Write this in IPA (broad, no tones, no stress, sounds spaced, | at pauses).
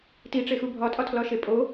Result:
t i ʈ͡ʂ e x u bʱ ɒ tʼ ɒ tʰ l ɒ ʃ e pʼ o